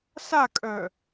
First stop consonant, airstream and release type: ejective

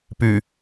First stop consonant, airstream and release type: plain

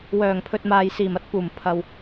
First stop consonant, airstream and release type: aspirated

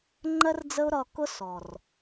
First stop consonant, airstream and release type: click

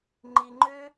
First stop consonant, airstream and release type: click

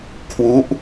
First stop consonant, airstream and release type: aspirated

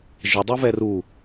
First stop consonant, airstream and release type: plain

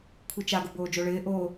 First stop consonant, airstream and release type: aspirated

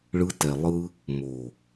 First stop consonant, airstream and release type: plain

